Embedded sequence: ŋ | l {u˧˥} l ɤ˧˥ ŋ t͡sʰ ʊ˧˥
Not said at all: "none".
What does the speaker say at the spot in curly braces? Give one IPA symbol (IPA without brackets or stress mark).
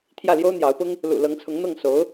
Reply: ṵ˨˩